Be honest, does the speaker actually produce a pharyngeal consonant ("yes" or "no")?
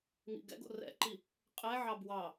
yes